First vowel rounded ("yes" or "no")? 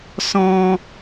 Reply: yes